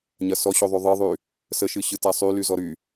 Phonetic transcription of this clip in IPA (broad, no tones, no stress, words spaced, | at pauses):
ɲɐsɔɕo ðˤyðˤɨðˤy | səʃɨ ɕɨtasˤy lyzɔɾy